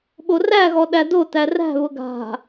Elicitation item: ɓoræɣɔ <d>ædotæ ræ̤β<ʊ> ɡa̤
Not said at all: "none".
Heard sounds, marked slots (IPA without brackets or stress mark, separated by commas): ɗ, ʊ